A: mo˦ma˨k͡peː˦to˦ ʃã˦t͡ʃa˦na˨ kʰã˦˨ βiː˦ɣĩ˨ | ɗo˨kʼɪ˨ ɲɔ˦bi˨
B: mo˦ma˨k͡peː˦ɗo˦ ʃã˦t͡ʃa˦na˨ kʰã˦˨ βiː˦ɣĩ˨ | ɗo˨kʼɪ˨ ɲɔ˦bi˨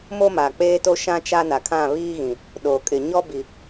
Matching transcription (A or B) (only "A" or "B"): A